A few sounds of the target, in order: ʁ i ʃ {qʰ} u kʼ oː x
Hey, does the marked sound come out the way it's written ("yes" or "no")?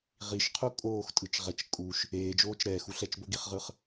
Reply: yes